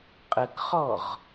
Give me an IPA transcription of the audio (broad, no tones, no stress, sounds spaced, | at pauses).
qʼ ə k χ ɔ ʁ